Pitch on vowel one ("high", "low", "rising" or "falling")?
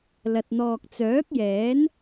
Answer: low